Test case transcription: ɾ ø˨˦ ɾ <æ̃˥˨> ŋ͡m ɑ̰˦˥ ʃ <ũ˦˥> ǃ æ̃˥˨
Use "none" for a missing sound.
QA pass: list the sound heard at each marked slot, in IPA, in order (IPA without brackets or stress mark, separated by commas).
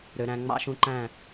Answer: æ̃˨˦, ũ˦˥